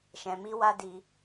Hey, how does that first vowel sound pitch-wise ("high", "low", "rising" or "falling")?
low